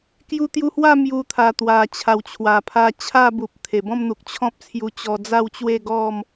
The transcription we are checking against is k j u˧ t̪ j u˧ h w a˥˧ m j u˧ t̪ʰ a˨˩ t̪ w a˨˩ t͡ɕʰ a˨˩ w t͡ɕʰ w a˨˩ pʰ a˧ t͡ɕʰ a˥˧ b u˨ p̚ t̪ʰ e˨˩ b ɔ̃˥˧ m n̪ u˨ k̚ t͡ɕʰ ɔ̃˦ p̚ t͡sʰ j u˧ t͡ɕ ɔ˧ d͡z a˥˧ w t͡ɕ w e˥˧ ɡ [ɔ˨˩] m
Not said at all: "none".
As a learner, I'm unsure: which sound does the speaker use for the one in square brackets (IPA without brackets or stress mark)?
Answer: ɔ˥˧